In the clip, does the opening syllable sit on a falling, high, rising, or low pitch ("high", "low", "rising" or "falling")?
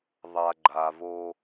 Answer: low